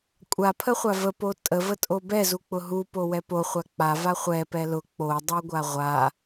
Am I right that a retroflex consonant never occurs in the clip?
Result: yes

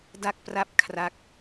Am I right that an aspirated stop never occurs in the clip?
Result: no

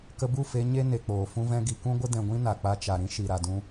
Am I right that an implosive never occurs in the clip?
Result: yes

